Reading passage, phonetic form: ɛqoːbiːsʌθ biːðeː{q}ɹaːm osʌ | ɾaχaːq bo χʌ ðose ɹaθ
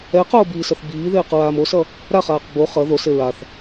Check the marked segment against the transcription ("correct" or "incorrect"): correct